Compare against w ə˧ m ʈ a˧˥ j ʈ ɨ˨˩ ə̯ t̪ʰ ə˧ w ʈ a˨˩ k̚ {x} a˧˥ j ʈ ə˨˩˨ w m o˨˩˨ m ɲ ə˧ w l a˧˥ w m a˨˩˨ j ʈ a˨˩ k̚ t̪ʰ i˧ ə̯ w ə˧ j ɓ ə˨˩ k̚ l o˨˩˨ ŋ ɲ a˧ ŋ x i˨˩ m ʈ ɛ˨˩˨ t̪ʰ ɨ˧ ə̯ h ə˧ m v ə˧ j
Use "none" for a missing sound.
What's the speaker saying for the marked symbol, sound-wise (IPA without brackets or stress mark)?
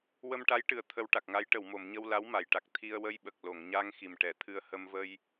ŋ